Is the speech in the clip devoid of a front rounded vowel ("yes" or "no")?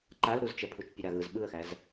yes